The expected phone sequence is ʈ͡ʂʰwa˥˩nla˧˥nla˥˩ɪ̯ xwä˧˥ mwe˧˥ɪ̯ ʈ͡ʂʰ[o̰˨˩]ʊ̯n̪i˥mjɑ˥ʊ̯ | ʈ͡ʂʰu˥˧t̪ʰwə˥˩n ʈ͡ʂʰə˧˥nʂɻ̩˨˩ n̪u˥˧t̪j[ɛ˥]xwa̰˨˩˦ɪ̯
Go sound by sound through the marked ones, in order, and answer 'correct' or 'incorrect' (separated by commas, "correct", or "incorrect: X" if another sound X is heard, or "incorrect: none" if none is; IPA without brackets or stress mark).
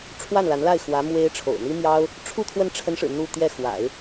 correct, incorrect: ɛ˥˩